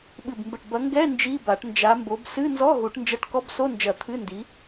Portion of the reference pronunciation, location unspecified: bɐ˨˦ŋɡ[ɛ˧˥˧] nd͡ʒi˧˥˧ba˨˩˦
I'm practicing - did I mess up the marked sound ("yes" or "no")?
no